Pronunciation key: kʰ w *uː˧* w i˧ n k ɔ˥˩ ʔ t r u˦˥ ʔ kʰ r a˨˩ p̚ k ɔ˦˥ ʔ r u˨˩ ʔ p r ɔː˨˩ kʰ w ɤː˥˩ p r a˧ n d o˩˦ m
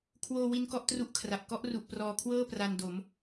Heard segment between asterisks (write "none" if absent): oː˧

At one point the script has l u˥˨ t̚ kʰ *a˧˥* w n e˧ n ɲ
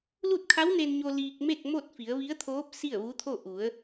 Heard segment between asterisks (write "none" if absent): a˧˥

